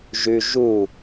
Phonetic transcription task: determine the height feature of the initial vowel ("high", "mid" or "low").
high